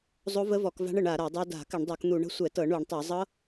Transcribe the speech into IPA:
zˤ o˦˥ v ə˦˥ v ɔ˧˩˧ k v a̤˦˥ ɳ ə˧˩˧ ɳ a˧˩˧ ɾ a˧˩˧ dˤ o˦˥ d a̤˧˩˧ k ə˧˩˧ ɳ dˤ o˧˩˧ k n̪ u˧˩˧ ɳ ə̤˦˥ sʷ ɛ˧˩˧ t ɤ˧˩˧ ɳ u˧˩˧ ɳ tˤ ɤ˧˩˧ zˤ ɤ˦˥

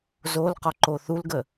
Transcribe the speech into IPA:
z o l q ɒ ǃ o θ u l ɡ ə

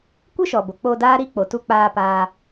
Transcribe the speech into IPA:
kʷ ɨ˦ ʃ ɔ˨ b o˨ k͡p o˧ d aː˦ ɾ i˦ k͡p o˨ t u˧ k͡p aː˧ p aː˧

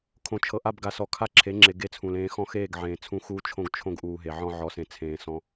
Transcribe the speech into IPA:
kʰ õ˨ t͡ʃʰ ɤ˨ ʔ a˦˨ b ɡ a˨ s ɔ˨ kʰ a˦ ǁʰ e˨˦ ŋ͡ǁ e˨ ɡ e˦ t͡sʰ ũ˨ l ẽː˦ x ɔ̃˦ x eː˦˨ ɡ ʕ ẽː˨ t͡sʰ ũ˦ x uː˦ t͡ʃʰ õ˦ ɡ t͡ʃʰ õ˦ ɡ ʔ uː˨ ɦ e˨ ʕ ɔ̃˦ ʕ ɔ˨˦ s ẽ˨ t͡sʰ ẽː˨ s ɔ̃˦

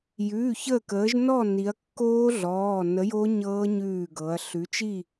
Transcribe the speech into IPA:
j ʉː˩˧˩ ç əː˧˩ k əː˩˧ ʒ n ɔ˥˨ n i˩˧ ɐ̯ kː oː˦˥ ɮ ɔː˩˧˩ n ə˨˥ j o˦˥ ɲ ɤː˦˥ ɲ ʉː˧˩ ɡ ɤ˩˧ ɐ̯ ɬ ʉ˨˥ t͡ʃ i˥˨

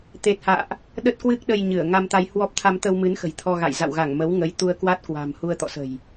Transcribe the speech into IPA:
t̪ e˨˩ t̚ h a̰ː˧˨ ʔ | ɗ ə˦˥ t̚ k w ɨ˦˥ k̚ ɗ ə˧ j ɲ ɨ˧˩ ə̯ ŋ a˧ m t̪ a˧ j h w ɔ˦˥ p̚ t̪ʰ a˧ m t̪ ə˧ w m ɨ˨˦ n x ə̤˨˩ j t̪ʰ ɔ˧ ɣ a̰˧˨ j z a̰˧˨ w ɣ a˧˩ ŋ m ə˨˦ w ŋ ə˨˦ j t̪ u˧ ə̯ k w a˦˥ t̚ k w a̤˨˩ m h u˧ ə̯ t̪ ɔ̰˧˨ s ə̤˨˩ j

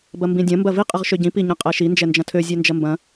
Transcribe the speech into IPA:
b ɐ m b ĩ dʲ ɐ̃ m b ɐ v i qʼ ə ʁ ʃ ø ɟ ĩ p i ɲ ɐ̃ qʼ ɛ ʃ i n d͡ʒ ɛ n d͡ʒ ɐ̃ tʰ ø zʲ ɛ n d͡ʒ ɐ m b ɐ̃

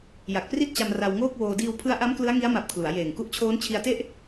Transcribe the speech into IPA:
j a˨˩ k̚ p r i˥˩ t̚ t͡ɕ a˧ m r a˧ w ŋ oː˥˩ k̚ w oː˧ d iː˧ w pʰ ɯ˦˥ a̯ ʔ a˦˥ m k l ɯ˦˥ a̯ ŋ i˦˥ a̯ m a˨˩ p̚ kʰ l u˩˦ a̯ j eː˨˩ ŋ k u˥˩ ʔ t͡ɕʰ oː˦˥ n t͡ɕʰ i˧ a̯ t e˥˩ ʔ

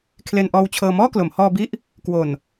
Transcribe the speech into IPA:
kʰ l e˧ n ʔ ɔː˧ w t͡ɕʰ ɤː˧ m ɔː˥˩ k l o˩˦ m h ɔː˧ b i˦˥ ʔ | k w o˨˩ n

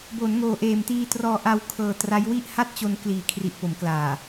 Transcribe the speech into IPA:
b o˩˦ n ŋ oː˨˩ ʔ eː˨˩ m t iː˧ t r ɔː˧ ʔ a˧ w kʰ ɤː˨˩ t r a˦˥ j w i˥˩ ʔ h a˥˩ t̚ t͡ɕ o˧ n k l iː˨˩ kʰ r i˨˩ ʔ p o˩˦ m k l aː˨˩

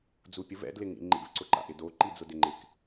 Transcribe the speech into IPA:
d͡z u pʲ ʊ v ɛ̰ d l ɪ ŋ ḭ ŋ͡ǃ ḭ v ǀ ʊ ǃ a̰ ʔ ɪ d o ǃ i d͡z ʊ d ɪ ŋ͡ǃ ɪ k

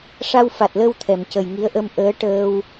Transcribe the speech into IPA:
ʂ a˧ w f a˨˩ t̚ l ə˧ w t̪ʰ ɛ˨˩˨ m c ə˨˩ j ŋ i˧˥ ə̯ ʔ ə˧ m ʔ əː˧˥ ʈ əː˧ w

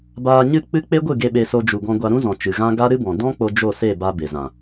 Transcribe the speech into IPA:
b aː˧ ɲ ɨ˦˨ k͡p ɨ˦ k͡p e˦ ɡʷ ɨ˦˨ ɡ e˧ ɓ e˧ s o˧ d͡ʒ u˨ ɡ ɔ̃˧ ɡʷ a˧ ɾ ũ˦ z ɔ̃˨ t͡ʃ ɨ˨ ɣ ã˦ ɡ a˦ ɾ ɨ˦ b ɔ̃˨ d ɔ̃˦ k͡p o˧ d͡ʒ o˦˨ s e˦˨ b a˧ b e˨ z ã˨

